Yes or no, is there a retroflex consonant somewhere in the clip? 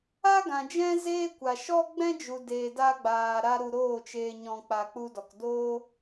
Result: no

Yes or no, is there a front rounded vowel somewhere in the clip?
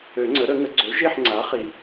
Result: yes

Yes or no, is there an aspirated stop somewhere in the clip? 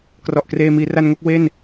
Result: no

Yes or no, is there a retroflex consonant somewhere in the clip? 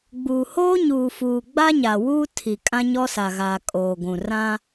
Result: no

